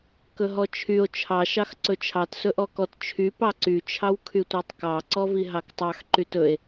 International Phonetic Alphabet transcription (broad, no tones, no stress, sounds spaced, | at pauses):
k ɵ ɦ ɔ t͡ʃʰ y o̯ t͡ʃʰ ɑ ʃ ɑ x ǀ ɵ t͡ʃʰ ɑ t s ɵ ʔ ɔ k ɔ t t͡ʃʰ y p ɑ ǀ y t͡ʃʰ ɑ w kʰ y tʷ ɑ tˤ k ɑ ǀ ɔ v i ɦ ɑ k tˤ ɑ x ǃ y t ɵ e̯